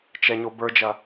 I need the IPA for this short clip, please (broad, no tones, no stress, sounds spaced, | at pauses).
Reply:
t͡ʃ ɛ ɲ o b ə˞ d͡ʒ ɐ